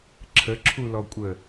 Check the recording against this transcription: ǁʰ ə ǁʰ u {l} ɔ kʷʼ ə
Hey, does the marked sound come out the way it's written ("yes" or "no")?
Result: yes